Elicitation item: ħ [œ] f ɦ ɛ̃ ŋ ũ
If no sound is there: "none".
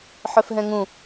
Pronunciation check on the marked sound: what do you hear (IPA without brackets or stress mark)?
œ